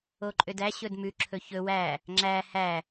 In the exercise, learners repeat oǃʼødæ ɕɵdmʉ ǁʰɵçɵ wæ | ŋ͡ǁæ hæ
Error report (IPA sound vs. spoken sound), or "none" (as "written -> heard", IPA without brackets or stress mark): none